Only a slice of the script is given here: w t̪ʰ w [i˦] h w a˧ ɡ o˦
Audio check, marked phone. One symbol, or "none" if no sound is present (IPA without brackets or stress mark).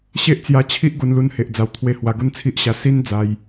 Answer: e˦